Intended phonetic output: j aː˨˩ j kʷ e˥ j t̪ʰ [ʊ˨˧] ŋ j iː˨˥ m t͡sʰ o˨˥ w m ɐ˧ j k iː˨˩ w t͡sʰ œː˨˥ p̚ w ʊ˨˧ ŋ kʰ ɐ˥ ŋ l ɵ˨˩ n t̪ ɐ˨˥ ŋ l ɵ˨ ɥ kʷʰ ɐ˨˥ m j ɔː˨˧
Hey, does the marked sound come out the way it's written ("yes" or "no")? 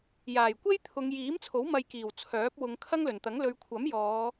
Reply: yes